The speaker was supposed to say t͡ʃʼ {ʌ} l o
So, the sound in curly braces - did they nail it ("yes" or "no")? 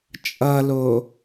yes